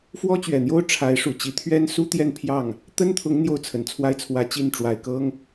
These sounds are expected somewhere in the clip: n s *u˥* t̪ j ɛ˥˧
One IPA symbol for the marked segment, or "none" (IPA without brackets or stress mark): u˥